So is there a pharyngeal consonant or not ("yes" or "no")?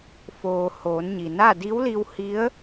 no